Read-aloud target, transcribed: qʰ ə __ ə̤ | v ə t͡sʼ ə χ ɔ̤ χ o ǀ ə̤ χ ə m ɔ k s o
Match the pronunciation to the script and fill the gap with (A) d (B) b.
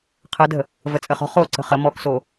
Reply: A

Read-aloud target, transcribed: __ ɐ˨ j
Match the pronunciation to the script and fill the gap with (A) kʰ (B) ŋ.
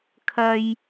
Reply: A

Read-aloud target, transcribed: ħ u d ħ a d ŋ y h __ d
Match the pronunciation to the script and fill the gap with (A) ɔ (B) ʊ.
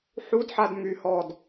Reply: A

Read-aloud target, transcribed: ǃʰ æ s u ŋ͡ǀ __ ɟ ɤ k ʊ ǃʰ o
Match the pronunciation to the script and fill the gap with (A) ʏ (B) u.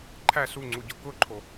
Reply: B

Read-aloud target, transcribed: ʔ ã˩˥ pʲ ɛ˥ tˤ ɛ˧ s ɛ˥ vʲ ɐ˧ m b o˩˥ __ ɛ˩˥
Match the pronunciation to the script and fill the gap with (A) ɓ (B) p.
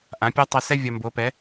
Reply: B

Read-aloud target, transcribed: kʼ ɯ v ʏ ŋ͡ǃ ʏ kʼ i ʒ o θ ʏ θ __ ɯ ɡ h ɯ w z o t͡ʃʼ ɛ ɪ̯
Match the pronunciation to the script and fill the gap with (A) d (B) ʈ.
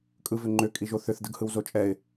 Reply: A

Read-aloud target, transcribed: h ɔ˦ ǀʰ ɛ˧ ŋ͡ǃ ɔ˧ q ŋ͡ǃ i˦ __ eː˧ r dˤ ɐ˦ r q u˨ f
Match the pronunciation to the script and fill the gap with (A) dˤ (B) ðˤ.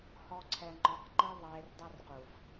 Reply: B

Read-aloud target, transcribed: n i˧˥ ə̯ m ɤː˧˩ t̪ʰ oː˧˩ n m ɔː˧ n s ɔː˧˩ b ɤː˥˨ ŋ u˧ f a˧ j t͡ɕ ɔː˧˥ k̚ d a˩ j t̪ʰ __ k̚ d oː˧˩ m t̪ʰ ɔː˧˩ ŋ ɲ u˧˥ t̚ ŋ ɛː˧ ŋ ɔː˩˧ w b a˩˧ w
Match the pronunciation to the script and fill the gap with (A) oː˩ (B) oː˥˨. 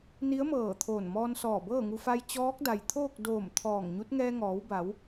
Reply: B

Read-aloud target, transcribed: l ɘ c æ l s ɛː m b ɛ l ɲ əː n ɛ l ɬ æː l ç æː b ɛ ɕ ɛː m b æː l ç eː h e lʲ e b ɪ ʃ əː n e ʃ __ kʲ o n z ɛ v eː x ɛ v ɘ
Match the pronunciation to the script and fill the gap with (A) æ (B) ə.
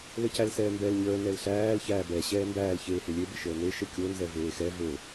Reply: B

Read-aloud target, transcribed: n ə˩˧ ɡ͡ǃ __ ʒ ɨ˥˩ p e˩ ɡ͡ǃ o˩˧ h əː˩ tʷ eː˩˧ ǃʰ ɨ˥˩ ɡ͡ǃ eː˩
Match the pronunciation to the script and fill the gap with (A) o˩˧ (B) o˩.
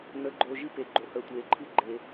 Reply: B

